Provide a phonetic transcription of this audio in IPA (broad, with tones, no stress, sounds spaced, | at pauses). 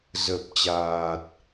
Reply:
z ə˨˩ p̚ t͡ɕ aː˨˩ t̚